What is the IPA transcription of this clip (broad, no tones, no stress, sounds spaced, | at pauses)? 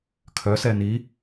kʰ œ s ɛ n i